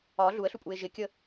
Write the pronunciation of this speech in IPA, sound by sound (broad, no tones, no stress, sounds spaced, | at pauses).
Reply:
ɒ ɮ u ə̯ ɬ u pʼ u ɪ̯ ʒ ɪ kʲ ə